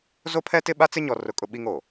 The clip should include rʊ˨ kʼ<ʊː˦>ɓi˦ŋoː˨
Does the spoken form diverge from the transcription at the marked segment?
yes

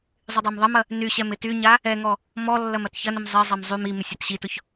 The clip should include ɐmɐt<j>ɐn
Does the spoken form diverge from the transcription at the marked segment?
yes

